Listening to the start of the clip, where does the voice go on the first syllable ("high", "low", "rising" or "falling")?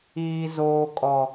high